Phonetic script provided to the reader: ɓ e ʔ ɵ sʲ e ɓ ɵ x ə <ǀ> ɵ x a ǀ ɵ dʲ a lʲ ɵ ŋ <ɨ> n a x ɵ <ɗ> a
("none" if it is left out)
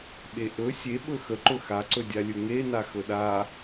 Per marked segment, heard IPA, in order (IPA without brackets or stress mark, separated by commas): ǃ, e, ɗ